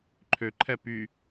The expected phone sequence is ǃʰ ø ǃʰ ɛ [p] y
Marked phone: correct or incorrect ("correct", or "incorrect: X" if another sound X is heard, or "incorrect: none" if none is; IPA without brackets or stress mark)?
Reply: correct